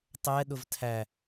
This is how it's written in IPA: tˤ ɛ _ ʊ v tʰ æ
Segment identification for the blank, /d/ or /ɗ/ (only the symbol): ɗ